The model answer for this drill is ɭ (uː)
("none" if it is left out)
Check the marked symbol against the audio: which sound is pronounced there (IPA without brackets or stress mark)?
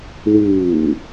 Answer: uː